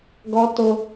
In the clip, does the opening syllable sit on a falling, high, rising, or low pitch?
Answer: high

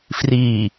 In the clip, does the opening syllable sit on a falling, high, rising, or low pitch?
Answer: low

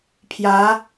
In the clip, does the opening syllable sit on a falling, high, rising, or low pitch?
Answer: rising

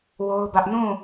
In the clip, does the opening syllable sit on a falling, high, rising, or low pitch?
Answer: high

